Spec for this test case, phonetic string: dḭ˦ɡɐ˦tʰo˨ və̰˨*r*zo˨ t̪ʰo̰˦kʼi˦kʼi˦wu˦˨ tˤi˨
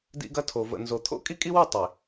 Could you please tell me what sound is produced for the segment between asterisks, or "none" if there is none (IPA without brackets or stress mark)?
n